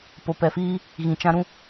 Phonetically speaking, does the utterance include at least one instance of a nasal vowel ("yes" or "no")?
yes